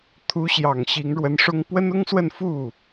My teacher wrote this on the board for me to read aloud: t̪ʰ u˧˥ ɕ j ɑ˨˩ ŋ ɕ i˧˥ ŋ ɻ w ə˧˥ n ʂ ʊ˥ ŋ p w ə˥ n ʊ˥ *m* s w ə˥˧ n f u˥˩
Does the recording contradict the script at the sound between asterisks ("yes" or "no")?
yes